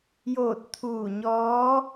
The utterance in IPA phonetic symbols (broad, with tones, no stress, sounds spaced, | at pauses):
j oː˧˩ t̚ t̪ʰ uː˧˩ ɲ ɔː˧˥